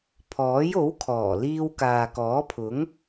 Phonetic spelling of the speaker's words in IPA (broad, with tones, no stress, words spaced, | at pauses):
pʰɔː˨˥jo˨˥wkʰɔː˨˩ liː˧w kaː˨kɔː˨˥pʰʊ˨˥ŋ